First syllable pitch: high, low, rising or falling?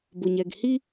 low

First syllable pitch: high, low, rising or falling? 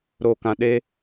low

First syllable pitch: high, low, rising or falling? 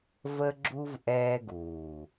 high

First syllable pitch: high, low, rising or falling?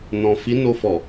low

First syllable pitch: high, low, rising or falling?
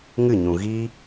falling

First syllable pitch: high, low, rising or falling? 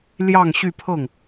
falling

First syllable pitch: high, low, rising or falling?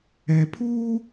low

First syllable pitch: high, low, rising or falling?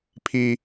high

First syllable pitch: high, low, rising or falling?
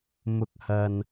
low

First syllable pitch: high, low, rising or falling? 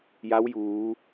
rising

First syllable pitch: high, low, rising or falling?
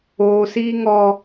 high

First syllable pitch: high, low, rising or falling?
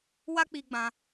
high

